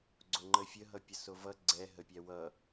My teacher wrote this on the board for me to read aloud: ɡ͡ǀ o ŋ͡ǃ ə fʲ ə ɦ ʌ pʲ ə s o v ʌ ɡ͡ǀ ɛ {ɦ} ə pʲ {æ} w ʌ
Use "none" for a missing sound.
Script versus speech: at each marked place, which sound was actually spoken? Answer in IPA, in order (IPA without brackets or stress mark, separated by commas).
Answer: ɦ, æ